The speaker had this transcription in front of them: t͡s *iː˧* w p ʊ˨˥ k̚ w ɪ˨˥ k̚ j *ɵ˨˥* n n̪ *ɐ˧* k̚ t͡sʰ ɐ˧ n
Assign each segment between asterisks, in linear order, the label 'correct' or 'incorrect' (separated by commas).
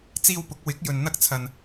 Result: correct, incorrect, incorrect